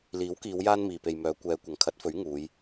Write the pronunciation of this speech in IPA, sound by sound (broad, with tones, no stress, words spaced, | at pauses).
liː˨˥wkiː˨˧w jaː˥nmiː˨pe˨jmœː˨˧ kʷɛː˨˧ kʷɐ˨˩ŋkʰɐ˨˥t̚fɵ˨˥ɥ ŋuː˨˧j